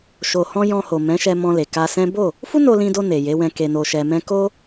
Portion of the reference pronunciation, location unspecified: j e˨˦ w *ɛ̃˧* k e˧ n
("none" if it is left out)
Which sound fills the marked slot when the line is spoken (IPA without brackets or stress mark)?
ɛ̃˧